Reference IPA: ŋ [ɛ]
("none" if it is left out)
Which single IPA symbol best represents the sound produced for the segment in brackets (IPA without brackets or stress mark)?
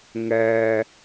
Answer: ɛ